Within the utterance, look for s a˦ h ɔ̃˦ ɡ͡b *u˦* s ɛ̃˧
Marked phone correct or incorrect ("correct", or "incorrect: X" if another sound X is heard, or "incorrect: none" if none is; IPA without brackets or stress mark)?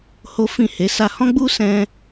correct